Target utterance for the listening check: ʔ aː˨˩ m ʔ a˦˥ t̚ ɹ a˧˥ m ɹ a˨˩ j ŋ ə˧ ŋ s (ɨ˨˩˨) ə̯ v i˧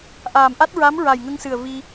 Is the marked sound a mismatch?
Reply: yes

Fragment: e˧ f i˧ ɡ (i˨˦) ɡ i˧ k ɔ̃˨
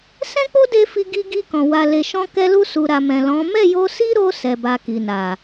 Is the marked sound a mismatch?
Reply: yes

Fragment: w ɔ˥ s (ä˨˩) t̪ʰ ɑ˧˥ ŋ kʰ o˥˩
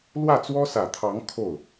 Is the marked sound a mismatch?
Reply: no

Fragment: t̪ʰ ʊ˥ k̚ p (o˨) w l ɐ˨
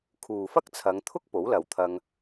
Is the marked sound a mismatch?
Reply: yes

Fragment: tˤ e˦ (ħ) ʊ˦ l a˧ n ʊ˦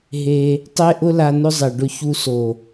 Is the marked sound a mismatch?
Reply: yes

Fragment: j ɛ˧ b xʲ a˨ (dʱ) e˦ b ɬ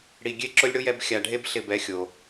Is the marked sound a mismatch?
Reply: yes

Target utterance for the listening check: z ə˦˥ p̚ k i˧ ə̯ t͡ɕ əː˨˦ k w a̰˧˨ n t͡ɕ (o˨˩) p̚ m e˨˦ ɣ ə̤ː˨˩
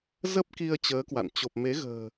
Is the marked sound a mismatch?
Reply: no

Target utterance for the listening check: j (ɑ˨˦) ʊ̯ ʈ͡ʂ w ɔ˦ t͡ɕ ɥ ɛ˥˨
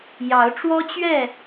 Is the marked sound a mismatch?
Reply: no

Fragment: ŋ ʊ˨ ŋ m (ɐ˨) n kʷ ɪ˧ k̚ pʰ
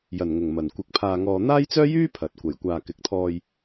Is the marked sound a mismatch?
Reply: no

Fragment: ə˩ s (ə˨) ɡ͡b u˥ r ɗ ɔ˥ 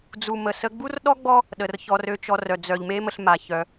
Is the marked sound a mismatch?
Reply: yes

